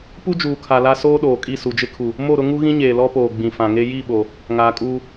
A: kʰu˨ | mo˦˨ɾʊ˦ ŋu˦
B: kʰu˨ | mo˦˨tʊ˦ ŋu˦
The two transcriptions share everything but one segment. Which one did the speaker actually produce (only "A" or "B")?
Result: A